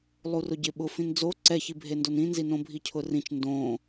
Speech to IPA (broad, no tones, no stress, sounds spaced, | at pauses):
lˠ u r ʊ ɟ ɪ ɓ ʊ f ĩ n d͡z o ǀ ɛ ç i bʱ e n d o n ĩ n z i n õ bʱ i cʰ ʊ r ĩ t͡ʃ n d õ